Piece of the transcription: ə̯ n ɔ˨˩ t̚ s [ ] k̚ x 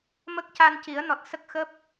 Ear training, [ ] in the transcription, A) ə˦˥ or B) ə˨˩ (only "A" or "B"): A